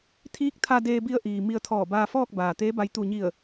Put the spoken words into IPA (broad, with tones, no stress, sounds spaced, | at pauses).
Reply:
t̪ʰ iː˧˥ k̚ t̪ʰ a˧ d eː˧ b i˧ ə̯ ʔ iː˩ m i˧ ə̯ t̪ʰ ɔː˧˩ b aː˧ f ɔː˥˨ k̚ b aː˩ t̪ eː˧˥ b a˧ j t̪ u˧˩ ɲ i˧˩ ə̯